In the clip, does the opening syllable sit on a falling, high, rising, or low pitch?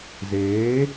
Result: rising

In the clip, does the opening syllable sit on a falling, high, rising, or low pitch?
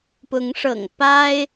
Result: rising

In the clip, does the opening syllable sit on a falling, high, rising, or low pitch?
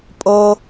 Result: high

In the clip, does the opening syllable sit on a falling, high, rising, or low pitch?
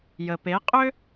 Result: low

